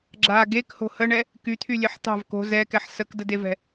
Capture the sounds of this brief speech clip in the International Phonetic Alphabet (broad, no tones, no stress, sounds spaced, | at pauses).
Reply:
ɡ͡ǁ a ɡ e k h o̤ h ə ɳ ɛ | k y t̪ʰ y lʲ e ħ t̪ ɑ̤ v k o̤ z ɛ k ɛ ħ s ə k d ə d e v ɛ̤